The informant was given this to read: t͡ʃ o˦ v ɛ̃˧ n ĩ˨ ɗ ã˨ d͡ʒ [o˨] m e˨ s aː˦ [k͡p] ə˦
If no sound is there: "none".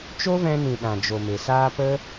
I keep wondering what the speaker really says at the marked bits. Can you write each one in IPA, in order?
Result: o˨, p

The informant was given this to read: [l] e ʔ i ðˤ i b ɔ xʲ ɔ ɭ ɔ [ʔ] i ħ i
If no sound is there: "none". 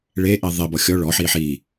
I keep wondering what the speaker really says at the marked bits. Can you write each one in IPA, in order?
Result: ɭ, ħ

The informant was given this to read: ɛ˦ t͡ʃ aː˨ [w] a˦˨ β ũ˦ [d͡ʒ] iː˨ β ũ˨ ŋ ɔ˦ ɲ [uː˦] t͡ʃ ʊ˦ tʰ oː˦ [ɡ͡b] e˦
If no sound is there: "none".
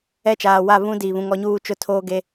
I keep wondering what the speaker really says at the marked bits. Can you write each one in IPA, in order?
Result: w, d, uː˦, ɡ

